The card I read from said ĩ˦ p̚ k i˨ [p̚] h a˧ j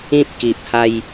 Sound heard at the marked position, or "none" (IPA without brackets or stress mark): p̚